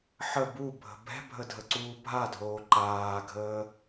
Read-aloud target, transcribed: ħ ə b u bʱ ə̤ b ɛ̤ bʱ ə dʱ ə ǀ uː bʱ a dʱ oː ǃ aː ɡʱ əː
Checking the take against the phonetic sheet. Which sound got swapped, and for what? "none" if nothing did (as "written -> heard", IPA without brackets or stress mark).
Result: none